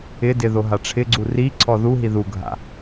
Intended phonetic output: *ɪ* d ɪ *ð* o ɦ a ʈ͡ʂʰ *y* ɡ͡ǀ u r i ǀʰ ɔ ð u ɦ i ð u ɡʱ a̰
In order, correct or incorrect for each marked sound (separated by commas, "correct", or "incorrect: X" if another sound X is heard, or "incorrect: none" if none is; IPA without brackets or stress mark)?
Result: correct, correct, incorrect: ɪ